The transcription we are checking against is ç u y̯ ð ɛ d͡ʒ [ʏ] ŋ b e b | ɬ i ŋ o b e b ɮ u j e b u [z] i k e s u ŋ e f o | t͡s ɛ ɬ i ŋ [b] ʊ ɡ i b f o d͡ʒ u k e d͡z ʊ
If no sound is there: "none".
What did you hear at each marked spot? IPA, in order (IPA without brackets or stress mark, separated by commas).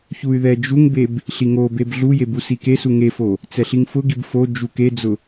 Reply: u, s, f